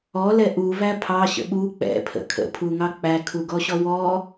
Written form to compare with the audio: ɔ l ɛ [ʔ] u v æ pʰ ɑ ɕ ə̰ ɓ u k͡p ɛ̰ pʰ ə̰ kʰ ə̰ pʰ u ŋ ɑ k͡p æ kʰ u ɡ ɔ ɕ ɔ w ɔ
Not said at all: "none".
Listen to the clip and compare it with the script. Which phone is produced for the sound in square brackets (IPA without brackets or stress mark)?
ʔ